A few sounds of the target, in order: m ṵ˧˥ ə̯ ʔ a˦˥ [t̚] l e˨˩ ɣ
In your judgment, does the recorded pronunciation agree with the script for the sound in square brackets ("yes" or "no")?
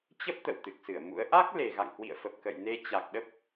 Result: no